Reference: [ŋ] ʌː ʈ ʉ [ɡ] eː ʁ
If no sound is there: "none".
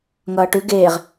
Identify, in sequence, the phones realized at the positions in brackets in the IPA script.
ŋ, ɡ

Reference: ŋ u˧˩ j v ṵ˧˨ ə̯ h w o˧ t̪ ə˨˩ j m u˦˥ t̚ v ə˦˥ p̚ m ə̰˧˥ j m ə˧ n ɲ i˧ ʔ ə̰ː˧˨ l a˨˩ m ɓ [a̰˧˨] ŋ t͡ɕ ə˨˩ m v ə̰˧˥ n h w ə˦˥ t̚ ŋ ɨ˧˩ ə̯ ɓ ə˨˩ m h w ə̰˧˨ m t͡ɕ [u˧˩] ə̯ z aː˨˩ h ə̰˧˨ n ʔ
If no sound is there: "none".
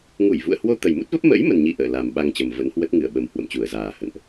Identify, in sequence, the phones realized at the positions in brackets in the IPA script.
a˧, u˧˩

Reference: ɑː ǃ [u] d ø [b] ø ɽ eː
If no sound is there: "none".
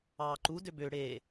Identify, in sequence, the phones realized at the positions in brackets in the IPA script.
u, b

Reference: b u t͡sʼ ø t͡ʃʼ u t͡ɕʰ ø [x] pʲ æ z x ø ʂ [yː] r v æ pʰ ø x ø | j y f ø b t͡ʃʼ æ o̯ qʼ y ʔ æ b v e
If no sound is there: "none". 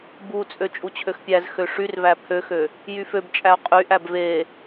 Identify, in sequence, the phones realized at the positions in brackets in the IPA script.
x, y

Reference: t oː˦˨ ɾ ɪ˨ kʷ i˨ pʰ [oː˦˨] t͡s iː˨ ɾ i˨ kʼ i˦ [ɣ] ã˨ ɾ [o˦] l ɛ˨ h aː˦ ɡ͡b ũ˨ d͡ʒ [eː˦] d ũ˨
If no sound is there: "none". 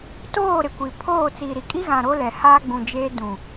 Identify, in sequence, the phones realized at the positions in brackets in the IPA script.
oː˦˨, ɣ, o˦, eː˦

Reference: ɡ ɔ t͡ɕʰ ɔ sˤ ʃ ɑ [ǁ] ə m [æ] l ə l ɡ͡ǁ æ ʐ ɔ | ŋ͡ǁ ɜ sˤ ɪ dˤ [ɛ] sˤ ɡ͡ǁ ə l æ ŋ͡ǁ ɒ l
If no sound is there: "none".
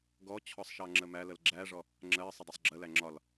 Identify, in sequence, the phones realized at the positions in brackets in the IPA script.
ŋ͡ǁ, æ, ɜ

